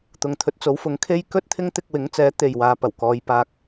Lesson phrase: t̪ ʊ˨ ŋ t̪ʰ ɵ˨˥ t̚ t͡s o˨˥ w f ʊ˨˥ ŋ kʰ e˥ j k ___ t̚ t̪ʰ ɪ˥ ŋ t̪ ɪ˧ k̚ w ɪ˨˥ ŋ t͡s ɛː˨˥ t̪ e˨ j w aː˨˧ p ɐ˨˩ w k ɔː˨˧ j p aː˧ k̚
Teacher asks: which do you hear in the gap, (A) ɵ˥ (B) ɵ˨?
A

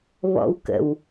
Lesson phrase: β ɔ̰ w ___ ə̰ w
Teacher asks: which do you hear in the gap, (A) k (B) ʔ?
A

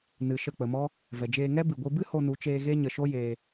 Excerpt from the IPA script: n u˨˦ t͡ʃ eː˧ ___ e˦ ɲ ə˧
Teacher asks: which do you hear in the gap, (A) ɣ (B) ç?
A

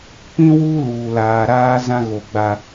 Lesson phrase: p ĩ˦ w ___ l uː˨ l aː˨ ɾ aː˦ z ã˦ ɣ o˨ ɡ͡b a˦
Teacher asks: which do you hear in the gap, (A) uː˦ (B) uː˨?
A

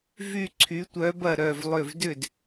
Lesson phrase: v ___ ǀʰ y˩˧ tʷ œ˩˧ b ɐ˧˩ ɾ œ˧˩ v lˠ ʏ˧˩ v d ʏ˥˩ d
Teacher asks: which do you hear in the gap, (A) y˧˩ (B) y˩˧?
A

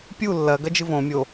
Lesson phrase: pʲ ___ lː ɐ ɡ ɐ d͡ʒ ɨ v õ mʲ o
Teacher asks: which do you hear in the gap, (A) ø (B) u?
B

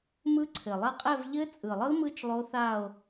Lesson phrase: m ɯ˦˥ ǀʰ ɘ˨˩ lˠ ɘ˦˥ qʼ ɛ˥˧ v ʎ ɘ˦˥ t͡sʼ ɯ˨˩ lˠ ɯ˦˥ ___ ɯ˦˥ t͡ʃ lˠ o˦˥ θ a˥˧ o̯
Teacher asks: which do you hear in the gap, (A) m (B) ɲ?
A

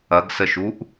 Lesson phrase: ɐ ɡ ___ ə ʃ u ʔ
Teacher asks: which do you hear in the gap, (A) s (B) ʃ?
A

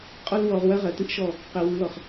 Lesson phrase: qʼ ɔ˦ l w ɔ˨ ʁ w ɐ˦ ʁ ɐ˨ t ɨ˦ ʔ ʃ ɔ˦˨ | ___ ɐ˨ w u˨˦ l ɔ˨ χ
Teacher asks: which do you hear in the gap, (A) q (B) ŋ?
A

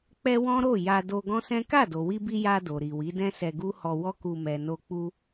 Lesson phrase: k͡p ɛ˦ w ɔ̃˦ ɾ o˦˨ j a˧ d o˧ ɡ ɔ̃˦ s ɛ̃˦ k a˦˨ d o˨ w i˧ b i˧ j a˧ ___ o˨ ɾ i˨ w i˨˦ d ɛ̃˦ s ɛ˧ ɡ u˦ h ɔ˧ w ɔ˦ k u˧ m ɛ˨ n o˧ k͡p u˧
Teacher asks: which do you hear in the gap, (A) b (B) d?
B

